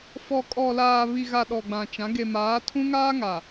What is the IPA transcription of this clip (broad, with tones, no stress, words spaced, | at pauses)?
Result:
fɔ˨kʼɔ˨laː˨ βi˨ɣa˨ ɗɔ˨ɡ͡bã˨t͡ʃã˨˦ ɡe˨maː˨˦tʰũ˦ŋaː˦ ŋa˨